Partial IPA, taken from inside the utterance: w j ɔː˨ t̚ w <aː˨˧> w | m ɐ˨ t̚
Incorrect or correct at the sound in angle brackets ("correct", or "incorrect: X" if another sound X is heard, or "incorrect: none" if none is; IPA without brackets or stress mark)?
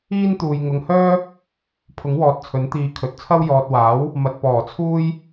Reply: incorrect: aː˨˥